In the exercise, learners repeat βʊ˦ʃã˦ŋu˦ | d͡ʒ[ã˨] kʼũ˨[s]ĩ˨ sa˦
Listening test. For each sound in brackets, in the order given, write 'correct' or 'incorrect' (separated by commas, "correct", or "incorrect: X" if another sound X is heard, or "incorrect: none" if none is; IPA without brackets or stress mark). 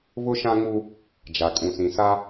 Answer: incorrect: a˨, correct